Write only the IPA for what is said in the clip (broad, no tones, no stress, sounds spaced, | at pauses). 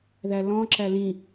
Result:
ð æ l ɔ̃ ǁ æ l ĩ